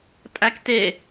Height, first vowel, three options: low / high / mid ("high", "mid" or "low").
low